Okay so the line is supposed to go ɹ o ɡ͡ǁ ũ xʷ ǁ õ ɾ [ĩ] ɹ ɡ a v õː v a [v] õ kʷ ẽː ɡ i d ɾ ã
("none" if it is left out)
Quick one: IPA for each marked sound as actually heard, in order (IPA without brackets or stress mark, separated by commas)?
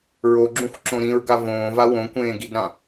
ĩ, w